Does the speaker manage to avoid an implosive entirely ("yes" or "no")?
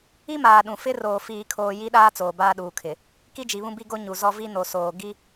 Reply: no